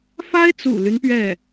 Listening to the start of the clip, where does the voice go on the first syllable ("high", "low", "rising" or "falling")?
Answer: high